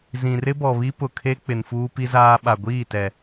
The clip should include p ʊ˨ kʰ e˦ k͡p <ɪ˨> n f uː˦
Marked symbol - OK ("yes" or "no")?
yes